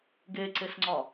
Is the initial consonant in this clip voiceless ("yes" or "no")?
no